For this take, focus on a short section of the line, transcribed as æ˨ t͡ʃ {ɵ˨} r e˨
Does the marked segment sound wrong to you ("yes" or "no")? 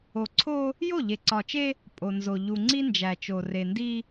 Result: yes